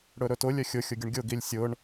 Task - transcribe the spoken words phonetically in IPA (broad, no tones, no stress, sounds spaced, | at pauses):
ɽ ɵ ɾ ɵ t ʊ lʲ œ xʲ ʊ xʲ ʊ ɡʲ ʊ ɳ ɡʲ ʊ ɡ i lʲ sʲ ʊ ɳ